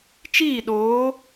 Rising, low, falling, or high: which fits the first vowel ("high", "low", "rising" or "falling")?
falling